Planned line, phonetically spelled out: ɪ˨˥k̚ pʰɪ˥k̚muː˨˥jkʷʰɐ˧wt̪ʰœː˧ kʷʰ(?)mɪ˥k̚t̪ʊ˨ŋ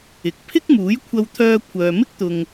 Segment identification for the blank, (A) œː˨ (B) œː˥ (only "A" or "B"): A